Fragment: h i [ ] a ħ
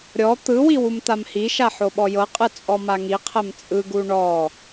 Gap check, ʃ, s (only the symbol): ʃ